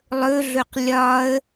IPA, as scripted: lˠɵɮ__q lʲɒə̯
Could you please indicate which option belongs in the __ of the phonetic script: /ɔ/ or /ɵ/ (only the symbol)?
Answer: ɵ